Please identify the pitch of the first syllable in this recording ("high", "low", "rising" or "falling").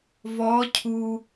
rising